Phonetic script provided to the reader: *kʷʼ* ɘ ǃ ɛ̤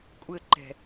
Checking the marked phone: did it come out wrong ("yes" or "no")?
no